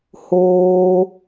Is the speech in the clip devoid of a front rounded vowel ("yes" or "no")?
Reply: yes